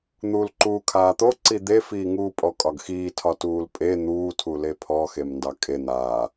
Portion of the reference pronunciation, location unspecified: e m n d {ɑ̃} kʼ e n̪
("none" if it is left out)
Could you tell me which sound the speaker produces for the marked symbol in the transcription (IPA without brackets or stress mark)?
ɑ